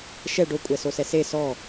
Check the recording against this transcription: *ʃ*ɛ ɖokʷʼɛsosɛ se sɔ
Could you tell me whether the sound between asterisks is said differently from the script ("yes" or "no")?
no